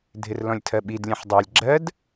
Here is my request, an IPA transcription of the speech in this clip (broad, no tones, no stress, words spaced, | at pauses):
dʱɪrlɔ̃lʲtʰɜɓid lʲɛ̃ħdˤɑlʲ ɡ͡ǁɜd